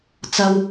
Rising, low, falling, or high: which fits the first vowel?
high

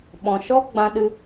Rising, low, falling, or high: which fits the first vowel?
low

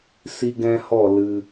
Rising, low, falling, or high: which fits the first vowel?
high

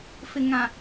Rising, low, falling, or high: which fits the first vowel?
low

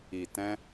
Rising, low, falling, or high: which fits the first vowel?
low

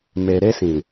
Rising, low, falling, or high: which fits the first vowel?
low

